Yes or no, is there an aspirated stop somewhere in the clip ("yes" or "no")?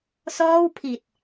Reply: yes